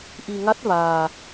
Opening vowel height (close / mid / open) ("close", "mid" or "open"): close